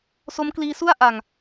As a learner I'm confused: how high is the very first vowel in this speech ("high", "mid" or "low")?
mid